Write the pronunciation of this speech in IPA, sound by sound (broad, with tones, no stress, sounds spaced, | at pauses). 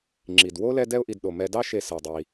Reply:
ŋ͡ǁ i˩ d w o˥ l ɛ˦ d ɛ˦ ʊ̯ ʔ i˨ d ɗ o˩ m ɛ˨ d ɑ˦ ʃ e˨ s ɜ˩ dˤ i˩